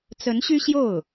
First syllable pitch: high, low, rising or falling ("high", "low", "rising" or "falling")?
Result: rising